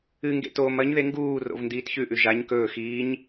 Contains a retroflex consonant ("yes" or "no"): no